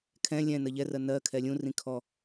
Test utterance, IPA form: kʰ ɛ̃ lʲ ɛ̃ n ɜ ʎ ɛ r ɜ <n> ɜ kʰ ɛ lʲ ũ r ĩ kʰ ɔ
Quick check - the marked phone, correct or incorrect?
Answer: correct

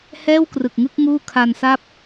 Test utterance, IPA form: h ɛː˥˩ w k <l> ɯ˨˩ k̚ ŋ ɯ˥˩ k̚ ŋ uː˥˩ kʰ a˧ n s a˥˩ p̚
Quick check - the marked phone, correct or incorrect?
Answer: incorrect: r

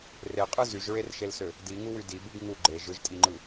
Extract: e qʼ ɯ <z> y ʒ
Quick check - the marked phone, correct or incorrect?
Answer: correct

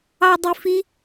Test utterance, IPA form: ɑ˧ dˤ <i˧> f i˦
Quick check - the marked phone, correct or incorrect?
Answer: correct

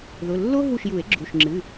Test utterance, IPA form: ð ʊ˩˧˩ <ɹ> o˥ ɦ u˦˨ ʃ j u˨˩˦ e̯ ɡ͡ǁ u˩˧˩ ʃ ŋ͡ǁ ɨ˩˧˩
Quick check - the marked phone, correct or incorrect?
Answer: incorrect: lː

